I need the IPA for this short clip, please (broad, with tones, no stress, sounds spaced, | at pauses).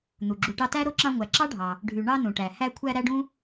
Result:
n̪ u˩ ɡ͡ǁ u˨ ʈ ɑ˦ t æ˥ ɾ o˥ ǁ ɑ̃˦ ŋʷ æ˨ ǁ ɑ˥ ɖʱ ɑ˩ | ɖʱ y˩ ɳ ɑ˦ n ũ˩ ʈ æ˩ h æ˦ kʷʰ æ˦ ɾ æ˥ ɖ ũ˥